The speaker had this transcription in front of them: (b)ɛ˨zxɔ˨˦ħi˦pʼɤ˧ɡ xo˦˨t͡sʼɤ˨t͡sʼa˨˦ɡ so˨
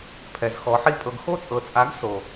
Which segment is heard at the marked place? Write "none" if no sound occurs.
pʰ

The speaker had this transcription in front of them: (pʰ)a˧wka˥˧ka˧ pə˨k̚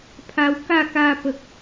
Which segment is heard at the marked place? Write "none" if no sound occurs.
pʰ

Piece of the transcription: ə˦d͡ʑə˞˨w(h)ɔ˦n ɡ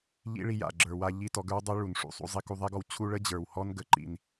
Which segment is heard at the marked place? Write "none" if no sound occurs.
h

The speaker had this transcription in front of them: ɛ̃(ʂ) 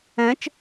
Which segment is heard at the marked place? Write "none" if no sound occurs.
t͡ʃ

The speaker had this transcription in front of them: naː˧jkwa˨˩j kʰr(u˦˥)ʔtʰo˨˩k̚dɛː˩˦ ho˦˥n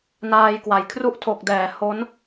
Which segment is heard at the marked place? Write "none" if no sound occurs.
u˦˥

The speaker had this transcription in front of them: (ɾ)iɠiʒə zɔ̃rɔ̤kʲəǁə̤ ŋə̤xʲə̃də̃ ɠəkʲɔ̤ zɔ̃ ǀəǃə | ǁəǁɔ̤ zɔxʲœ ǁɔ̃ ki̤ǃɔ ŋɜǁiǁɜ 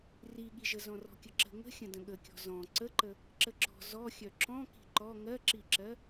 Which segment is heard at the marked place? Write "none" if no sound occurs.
r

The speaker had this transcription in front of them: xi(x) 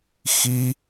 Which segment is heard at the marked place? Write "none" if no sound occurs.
none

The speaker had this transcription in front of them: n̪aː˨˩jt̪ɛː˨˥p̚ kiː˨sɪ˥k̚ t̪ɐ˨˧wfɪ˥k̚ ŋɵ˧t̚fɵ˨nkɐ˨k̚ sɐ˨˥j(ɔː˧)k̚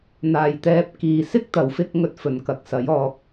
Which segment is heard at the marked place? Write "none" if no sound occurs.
ɔː˧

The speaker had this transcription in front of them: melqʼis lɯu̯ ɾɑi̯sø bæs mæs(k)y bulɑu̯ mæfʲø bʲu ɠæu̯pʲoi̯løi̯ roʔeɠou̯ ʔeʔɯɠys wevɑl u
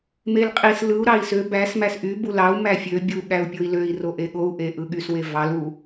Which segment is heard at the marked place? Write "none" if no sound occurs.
ʔ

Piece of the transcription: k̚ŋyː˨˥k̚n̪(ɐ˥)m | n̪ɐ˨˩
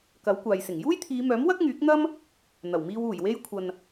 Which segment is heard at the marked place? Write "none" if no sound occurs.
ɐ˥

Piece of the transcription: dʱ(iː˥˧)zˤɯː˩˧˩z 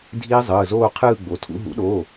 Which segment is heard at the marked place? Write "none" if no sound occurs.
iː˦˥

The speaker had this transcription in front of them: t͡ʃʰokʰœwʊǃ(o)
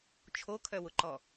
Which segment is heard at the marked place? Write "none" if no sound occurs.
ɔ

